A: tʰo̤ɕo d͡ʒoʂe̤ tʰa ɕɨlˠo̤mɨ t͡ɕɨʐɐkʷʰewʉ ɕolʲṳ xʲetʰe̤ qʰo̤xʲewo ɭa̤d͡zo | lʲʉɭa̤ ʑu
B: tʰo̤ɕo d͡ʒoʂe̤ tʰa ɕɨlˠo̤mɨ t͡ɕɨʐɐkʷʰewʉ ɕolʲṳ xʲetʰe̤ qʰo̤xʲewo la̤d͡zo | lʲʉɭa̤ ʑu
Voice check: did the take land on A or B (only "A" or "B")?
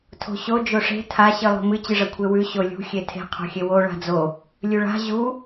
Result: A